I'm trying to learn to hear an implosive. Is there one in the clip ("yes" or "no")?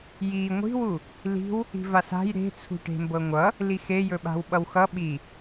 yes